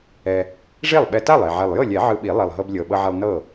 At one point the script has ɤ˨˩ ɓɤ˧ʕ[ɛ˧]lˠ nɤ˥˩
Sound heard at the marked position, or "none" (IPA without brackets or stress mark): ɛ˧